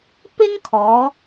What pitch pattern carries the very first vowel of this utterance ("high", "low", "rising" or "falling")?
high